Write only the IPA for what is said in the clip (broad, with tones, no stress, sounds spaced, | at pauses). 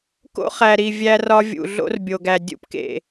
k o̰˦ χ æ˨ ɾ i˨ vʲ æ˦ r ɒ˦ vʲ ṵ˨ ɮ o̰˦ r bʲ o˨ ɡ æ˨ dʲ ṵ˦ p k ḛ˨